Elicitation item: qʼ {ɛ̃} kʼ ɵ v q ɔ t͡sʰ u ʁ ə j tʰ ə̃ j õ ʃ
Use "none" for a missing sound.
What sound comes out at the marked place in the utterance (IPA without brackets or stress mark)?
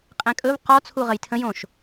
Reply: ɛ̃